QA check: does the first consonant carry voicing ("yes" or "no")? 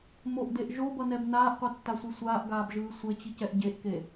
yes